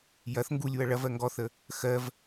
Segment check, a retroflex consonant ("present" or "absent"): present